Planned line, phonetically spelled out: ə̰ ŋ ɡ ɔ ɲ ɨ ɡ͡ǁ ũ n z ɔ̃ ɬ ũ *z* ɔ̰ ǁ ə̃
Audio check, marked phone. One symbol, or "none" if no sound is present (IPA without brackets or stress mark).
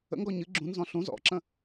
z